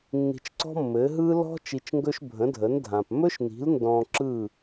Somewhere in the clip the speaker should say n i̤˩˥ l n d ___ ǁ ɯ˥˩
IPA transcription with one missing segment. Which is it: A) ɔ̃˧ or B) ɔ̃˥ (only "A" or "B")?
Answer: A